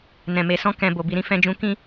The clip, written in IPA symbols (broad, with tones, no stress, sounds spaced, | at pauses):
n ɛ̃˨ m e˨ s ɔ̃˧ k ɛ̃˨ b o˨ b i˨ ɾ ĩ˧ f ɛ̃˧ d͡ʒ ũ˧ k ĩ˧